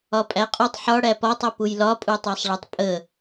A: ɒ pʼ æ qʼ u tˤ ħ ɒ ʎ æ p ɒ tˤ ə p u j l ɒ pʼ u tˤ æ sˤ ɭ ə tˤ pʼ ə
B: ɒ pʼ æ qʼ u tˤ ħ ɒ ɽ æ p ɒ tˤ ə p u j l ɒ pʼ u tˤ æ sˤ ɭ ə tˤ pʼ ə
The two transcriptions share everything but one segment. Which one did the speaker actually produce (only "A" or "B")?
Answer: B